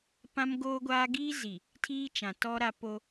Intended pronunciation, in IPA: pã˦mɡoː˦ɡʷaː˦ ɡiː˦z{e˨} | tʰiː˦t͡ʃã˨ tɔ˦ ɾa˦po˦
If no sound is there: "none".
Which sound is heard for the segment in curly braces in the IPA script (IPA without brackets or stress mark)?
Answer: i˨